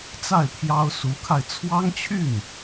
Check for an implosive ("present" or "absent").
absent